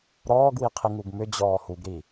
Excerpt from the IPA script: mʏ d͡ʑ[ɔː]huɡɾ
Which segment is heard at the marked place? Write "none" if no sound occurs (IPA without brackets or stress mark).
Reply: ɔː